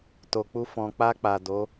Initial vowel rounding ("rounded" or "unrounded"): rounded